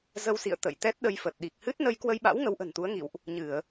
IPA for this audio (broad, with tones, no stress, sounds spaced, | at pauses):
z ə˧ w s ḭ˧˨ ə̯ t̪ ə̰˧˨ j t̪ ɛ˦˥ t̚ ɗ ə˧ j f ə˨˩ t̚ ɗ i˨˩ k̚ h ɨ˦˥ t̚ n ə˧ j k w ə˧ j ɓ a̰˧˥ w ŋ ə˨˦ w ʔ ə̤˨˩ n t̪ u˨˦ ə̯ ŋ ḭ˧˨ w ʔ | ɲ ɨ˧˩˨ ə̯